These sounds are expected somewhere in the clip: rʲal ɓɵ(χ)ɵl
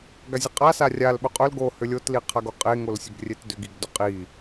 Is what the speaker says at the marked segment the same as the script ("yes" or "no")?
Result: no